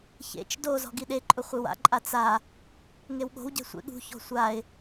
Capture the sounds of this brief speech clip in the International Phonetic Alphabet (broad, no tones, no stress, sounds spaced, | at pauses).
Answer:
ç ḛ t͡ʃ d o z ɔ̤ ɡ i ɗ e ǃʼ ʊ χʷ ɪ w a̰ ǃʼ a t͡s a | ŋ e w ɠ o̤ w ɟ ɛ̤ sʷ ḛ ɠ ṳ ç ɔ̤ sʷ a ɪ̯